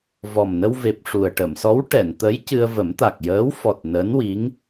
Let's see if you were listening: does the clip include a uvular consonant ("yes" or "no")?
no